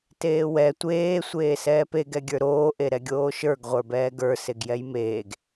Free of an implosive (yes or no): yes